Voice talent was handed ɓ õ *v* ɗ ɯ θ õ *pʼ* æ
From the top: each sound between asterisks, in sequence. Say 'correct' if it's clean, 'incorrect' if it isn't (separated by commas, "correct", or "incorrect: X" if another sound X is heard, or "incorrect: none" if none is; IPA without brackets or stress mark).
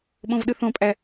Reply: correct, correct